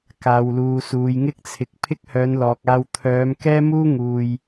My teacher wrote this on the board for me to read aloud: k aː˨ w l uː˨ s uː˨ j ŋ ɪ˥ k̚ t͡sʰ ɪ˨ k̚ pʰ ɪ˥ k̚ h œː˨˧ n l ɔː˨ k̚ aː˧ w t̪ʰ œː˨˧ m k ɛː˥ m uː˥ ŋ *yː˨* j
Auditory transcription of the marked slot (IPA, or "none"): uː˨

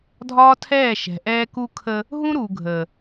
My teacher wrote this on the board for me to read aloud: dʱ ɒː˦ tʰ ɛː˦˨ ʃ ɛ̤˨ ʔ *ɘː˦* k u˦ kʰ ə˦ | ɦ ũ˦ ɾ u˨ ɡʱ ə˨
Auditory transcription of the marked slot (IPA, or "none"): ɛː˦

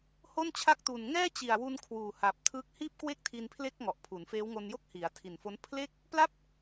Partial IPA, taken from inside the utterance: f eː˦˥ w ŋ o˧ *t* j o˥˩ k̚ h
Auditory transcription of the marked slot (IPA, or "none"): n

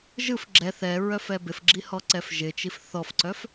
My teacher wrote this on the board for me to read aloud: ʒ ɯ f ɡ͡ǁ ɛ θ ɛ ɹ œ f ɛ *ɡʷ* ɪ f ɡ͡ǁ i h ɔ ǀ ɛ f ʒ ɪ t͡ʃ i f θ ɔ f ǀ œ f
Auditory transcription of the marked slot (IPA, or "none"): b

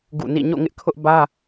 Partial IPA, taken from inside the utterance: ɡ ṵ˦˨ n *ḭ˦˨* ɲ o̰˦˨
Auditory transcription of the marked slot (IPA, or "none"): ḭ˦˨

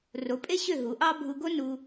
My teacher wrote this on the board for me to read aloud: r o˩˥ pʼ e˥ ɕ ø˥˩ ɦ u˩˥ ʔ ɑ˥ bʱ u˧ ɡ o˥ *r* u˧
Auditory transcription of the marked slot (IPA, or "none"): n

